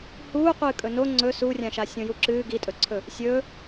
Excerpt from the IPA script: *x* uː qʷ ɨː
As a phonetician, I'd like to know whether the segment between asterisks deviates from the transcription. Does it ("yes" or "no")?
yes